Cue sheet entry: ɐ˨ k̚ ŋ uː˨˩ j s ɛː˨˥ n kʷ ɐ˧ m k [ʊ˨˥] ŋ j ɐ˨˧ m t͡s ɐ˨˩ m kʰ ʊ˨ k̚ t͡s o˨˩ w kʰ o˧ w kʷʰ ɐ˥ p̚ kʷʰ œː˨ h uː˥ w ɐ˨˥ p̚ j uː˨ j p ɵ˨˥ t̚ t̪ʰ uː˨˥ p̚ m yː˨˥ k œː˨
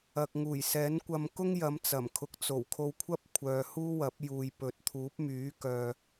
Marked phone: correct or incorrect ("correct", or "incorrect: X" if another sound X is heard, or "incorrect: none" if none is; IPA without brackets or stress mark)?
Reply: incorrect: ʊ˥